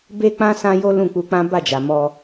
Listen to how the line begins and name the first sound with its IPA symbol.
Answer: b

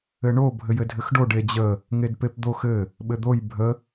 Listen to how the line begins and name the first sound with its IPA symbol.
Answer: ɘ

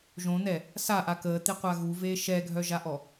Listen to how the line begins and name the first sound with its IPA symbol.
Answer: ʒ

